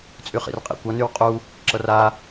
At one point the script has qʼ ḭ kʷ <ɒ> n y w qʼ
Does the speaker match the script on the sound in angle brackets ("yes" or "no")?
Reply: no